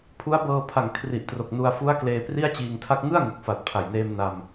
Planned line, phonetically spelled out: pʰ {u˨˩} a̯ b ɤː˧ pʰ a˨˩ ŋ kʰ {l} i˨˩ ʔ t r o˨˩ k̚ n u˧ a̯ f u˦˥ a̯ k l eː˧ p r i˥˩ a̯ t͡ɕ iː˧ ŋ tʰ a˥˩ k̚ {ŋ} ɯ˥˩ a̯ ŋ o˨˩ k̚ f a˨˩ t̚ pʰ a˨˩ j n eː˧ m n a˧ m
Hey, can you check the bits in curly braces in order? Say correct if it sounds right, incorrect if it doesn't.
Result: incorrect, incorrect, correct

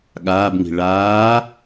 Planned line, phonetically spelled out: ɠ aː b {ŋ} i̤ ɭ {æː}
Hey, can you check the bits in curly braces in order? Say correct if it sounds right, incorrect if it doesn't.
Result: correct, incorrect

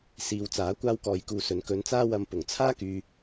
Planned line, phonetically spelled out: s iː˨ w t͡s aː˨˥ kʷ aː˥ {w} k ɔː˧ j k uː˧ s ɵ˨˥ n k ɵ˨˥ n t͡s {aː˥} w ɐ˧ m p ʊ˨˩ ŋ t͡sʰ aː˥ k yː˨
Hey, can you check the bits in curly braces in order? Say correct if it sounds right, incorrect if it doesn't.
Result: correct, correct

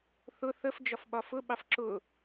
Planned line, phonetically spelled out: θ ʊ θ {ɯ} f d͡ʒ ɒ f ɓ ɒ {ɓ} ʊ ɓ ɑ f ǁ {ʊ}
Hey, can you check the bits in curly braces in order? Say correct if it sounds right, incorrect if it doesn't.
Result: incorrect, incorrect, correct

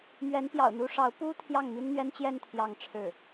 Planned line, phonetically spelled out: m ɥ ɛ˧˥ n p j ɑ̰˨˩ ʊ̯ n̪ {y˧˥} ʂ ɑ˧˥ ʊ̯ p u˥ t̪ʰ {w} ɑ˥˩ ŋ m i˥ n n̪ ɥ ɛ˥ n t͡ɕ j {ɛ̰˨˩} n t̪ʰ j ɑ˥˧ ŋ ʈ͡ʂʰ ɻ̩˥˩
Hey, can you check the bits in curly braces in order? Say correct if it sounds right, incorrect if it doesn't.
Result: incorrect, incorrect, incorrect

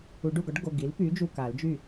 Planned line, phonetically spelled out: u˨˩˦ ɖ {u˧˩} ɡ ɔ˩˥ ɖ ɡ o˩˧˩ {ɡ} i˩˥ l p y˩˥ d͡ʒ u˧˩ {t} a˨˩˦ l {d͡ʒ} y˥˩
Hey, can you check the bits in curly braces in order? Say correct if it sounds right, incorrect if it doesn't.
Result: correct, correct, incorrect, correct

